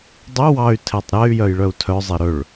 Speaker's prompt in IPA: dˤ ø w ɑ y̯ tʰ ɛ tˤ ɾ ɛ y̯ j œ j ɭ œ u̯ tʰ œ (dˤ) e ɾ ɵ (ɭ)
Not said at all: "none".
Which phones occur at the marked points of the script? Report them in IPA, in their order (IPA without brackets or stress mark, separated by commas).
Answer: zˤ, ɭ